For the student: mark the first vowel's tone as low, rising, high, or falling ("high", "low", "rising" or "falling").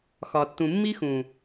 low